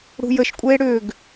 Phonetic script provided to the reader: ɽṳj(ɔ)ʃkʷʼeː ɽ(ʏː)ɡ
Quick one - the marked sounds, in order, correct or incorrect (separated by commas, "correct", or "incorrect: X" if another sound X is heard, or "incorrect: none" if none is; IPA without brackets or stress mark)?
incorrect: ə, correct